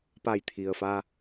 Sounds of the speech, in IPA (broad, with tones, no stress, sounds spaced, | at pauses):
p a˧˩ j t̪ʰ i˩ ə̯ f a˧